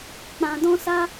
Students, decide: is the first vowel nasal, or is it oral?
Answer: nasal